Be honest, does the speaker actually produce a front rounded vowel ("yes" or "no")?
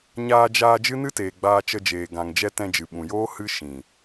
no